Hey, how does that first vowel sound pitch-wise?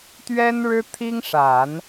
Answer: high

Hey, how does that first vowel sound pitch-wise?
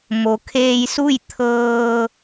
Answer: low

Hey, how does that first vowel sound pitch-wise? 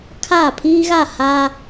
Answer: falling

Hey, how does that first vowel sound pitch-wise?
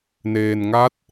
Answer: low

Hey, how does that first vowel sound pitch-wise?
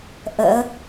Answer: rising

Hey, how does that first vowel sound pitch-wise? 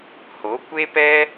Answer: rising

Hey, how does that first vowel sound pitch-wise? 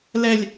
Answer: low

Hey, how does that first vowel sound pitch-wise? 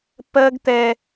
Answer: high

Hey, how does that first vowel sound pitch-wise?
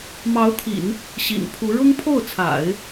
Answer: rising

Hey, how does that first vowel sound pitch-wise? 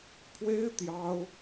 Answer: high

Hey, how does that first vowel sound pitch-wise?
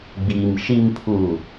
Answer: low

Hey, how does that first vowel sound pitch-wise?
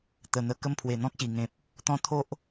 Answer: low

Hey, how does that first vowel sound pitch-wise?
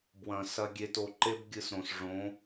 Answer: low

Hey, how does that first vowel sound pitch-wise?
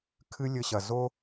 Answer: high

